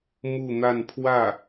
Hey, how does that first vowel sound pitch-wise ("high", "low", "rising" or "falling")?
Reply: falling